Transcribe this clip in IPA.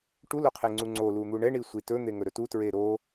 ʈ u l o qʰ e ŋ͡ǀ u ŋ͡ǀ o l u n̪ u ɳ ɛ ɳ i sʷ i t ɵ n̪ e ŋ ɵ ɾ ɵ t u t ɹ e ɾ o

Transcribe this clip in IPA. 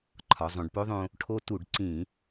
ǃʰ ɒ˩˧ zˤ õ˩˧ ɖ p o˦˥ ðˤ õ˧ | ʈʰ o˦˥ t u˧˩˧ ɖ ǀ ĩ˧˩˧

